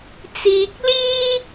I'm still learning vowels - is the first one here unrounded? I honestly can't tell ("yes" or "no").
yes